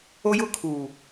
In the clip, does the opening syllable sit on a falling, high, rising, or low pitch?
high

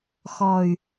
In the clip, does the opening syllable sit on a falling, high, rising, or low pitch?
low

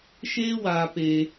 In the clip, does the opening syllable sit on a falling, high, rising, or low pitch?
high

